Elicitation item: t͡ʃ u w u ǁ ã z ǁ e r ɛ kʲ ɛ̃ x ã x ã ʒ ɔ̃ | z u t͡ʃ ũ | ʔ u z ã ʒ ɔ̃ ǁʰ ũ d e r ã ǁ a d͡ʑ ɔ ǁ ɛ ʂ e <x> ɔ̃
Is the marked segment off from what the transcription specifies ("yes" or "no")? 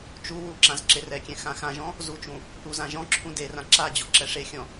yes